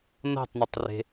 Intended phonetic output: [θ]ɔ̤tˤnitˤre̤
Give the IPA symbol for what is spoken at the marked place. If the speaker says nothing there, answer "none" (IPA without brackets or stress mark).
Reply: n